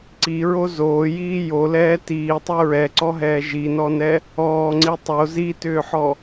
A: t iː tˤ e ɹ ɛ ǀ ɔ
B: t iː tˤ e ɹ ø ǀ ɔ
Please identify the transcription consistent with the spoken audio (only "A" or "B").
A